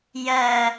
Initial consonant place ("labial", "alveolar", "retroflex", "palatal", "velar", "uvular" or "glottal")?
palatal